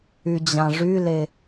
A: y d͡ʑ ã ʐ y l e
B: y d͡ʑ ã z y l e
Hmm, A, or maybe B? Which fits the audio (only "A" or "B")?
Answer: A